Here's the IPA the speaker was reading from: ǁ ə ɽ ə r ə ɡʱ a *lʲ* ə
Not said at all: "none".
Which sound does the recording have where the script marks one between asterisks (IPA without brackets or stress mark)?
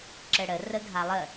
lˠ